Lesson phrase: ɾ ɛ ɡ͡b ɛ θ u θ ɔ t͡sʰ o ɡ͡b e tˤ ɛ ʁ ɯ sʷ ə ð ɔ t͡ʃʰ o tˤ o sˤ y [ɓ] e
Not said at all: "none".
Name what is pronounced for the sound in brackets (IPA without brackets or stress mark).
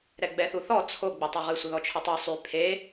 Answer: pʰ